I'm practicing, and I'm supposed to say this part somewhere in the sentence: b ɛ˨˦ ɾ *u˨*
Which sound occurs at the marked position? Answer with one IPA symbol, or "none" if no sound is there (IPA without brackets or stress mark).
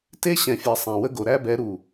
u˨